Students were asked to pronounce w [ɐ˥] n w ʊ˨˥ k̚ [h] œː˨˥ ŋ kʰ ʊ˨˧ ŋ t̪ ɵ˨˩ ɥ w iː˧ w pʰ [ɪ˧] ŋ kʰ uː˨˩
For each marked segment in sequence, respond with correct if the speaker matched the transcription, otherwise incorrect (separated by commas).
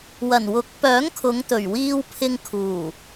incorrect, incorrect, correct